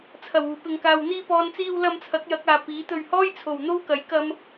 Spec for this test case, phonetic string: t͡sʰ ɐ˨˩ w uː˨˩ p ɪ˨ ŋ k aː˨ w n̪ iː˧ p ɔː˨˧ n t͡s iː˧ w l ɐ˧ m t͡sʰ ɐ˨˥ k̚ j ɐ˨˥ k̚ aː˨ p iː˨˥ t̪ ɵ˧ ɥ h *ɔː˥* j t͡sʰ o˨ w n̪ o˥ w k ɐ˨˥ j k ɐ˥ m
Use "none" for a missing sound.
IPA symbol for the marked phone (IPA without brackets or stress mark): ɔː˥